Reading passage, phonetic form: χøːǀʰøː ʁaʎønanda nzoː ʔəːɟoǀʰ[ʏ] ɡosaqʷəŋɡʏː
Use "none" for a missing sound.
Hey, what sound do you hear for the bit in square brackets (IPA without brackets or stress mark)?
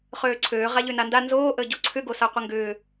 ʏ